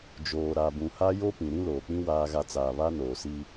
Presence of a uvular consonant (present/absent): absent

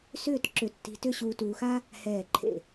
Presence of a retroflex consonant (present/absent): absent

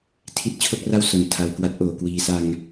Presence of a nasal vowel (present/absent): absent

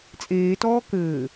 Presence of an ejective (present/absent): present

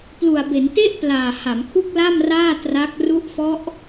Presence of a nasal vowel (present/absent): absent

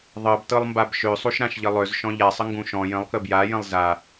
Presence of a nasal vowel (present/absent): present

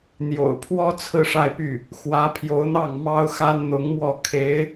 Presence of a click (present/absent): absent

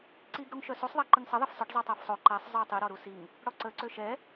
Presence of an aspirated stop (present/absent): absent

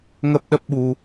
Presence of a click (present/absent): absent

